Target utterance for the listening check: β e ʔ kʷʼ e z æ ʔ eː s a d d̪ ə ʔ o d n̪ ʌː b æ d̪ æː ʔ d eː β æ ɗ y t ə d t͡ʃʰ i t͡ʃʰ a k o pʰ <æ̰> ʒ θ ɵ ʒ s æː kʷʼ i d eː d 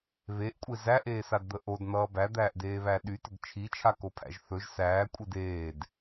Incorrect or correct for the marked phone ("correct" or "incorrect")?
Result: correct